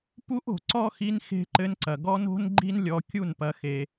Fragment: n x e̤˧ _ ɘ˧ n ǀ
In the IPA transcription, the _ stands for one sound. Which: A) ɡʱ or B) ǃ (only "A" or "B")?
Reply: B